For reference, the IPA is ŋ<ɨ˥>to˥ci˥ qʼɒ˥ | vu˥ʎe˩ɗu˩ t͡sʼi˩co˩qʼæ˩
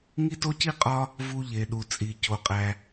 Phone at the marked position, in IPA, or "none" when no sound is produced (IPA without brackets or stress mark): i˥